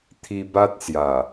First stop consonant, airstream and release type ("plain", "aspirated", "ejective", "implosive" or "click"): aspirated